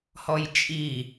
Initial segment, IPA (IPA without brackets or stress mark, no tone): h